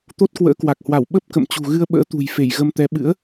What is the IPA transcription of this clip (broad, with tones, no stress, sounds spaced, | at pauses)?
t̪ o˦˥ t̚ k w ə̰ː˧˥ k w a˨˩ k̚ h w a˧˩ w ɓ ə˦˥ p̚ k ə̰˧˨ m t͡ɕ ṳ˨˩ ɣ ɨ˧ ə̯ ɓ ə̰ː˧˥ t̪ ṳ˨˩ j f e˧˩ j ɣ ə˧ m t̪ ɛ˨˦ ɓ ɨ̰˧˥ ə̯